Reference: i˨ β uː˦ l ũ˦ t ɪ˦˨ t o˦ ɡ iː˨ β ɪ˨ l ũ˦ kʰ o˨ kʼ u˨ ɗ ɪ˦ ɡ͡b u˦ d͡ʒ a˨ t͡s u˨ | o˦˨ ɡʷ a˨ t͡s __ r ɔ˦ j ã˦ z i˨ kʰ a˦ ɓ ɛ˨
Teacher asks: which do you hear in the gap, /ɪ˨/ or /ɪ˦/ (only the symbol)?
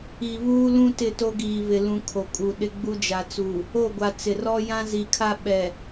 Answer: ɪ˨